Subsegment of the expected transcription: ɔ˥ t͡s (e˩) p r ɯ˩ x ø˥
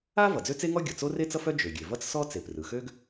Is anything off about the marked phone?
no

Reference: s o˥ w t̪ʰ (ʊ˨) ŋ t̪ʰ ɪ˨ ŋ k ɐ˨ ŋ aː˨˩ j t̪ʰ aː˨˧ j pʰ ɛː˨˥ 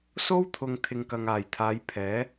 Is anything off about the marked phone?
no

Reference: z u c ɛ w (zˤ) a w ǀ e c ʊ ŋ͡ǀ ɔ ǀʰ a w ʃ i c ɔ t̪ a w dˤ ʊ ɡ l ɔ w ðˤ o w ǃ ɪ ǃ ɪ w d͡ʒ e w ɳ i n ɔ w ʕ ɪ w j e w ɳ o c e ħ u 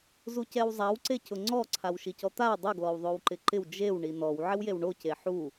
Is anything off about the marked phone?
no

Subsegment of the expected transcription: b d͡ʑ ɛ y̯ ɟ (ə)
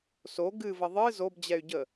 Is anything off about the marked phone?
no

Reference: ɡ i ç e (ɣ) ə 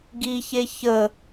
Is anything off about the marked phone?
yes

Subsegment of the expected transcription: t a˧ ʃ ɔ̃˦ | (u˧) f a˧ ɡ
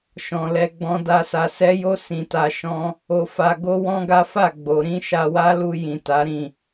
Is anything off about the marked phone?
yes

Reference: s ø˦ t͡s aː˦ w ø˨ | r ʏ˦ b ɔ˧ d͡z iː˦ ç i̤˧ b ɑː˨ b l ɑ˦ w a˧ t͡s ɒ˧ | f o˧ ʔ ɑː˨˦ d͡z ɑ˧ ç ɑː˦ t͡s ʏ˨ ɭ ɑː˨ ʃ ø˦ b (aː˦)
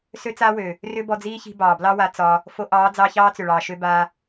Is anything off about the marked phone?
no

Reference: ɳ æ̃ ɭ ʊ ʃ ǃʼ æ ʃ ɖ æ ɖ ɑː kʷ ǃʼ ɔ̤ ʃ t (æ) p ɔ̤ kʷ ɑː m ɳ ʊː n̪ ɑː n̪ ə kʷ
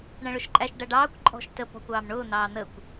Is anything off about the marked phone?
yes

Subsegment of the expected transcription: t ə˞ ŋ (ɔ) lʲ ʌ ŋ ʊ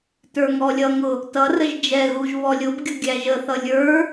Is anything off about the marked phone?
no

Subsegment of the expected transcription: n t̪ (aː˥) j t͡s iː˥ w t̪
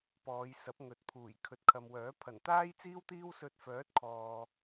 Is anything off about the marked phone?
no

